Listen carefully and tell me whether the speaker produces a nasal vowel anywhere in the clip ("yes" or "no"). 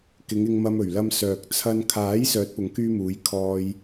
no